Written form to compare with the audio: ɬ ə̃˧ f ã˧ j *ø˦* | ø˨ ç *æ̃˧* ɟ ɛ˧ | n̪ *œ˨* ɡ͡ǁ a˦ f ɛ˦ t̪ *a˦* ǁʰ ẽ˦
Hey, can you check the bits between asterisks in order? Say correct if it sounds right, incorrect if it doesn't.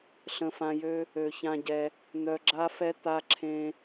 correct, incorrect: ã˧, incorrect: œ˧, correct

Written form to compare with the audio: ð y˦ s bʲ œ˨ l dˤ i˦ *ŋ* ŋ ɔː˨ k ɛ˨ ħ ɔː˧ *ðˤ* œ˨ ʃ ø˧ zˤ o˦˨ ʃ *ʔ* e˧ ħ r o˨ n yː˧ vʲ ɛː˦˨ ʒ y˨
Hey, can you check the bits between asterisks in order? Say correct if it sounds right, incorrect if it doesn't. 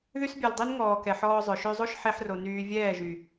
incorrect: n, incorrect: zˤ, incorrect: ħ

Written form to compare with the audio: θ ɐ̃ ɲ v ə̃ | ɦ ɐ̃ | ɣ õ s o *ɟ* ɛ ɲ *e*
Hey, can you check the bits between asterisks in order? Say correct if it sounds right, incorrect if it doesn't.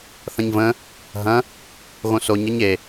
incorrect: ɲ, correct

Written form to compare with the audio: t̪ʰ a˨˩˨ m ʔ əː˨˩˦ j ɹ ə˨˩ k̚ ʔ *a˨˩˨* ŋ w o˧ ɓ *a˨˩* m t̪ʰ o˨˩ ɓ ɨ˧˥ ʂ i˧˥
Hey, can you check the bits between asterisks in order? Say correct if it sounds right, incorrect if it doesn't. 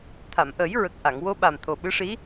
correct, correct

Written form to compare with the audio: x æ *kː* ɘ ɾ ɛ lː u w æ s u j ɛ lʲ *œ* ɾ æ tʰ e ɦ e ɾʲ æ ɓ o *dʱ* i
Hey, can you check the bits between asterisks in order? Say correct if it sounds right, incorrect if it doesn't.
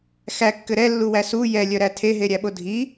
correct, correct, correct

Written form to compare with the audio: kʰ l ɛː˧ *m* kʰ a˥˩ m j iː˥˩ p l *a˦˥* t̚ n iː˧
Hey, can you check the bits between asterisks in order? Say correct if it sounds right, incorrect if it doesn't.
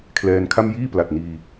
incorrect: n, incorrect: a˨˩

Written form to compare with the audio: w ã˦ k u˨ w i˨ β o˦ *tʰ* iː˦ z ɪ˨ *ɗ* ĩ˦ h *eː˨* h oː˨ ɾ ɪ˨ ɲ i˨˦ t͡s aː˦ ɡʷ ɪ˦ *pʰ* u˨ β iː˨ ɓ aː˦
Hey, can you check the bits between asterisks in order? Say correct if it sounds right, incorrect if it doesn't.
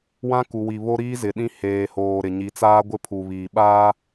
incorrect: ɾ, correct, correct, correct

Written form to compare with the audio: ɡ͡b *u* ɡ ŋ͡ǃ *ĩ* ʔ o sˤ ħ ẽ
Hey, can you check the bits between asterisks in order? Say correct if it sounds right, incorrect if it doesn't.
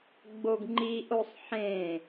incorrect: o, incorrect: i

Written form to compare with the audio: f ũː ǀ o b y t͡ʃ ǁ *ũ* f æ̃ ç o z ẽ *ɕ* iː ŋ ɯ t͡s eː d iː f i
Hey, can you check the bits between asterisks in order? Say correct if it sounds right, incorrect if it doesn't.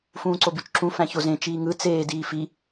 correct, incorrect: t͡ʃ

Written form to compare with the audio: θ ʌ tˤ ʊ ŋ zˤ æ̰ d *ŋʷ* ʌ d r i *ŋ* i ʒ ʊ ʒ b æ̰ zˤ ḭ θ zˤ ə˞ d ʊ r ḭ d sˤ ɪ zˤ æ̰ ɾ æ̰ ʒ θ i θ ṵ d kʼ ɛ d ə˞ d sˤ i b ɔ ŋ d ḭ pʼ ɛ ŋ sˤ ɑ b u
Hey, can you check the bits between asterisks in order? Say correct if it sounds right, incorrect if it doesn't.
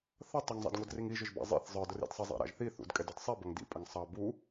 correct, correct

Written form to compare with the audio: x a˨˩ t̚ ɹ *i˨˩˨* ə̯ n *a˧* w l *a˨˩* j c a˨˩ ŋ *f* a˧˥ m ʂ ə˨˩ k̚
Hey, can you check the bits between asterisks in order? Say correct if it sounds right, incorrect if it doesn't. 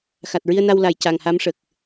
incorrect: i˧, correct, correct, incorrect: h

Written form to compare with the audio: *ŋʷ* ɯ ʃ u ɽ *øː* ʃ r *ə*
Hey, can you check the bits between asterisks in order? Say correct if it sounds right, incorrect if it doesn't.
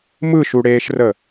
incorrect: m, incorrect: eː, correct

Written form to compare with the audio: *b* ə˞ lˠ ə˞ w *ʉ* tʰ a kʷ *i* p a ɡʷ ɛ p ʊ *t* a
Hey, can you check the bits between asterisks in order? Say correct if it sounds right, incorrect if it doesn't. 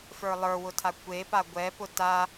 incorrect: f, incorrect: ʊ, incorrect: e, correct

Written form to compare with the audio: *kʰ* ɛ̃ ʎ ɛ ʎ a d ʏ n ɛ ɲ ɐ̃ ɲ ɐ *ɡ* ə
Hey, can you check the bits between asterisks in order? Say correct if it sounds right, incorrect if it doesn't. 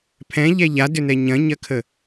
incorrect: pʰ, incorrect: kʰ

